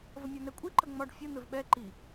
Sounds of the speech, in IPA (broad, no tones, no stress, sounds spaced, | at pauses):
v ə mʲ ɒ n ɛ kʷʼ i ǃ ə ŋ͡m ɒ ɖ fʲ ə n̪ ɘ v ɓ ɛ ǃ i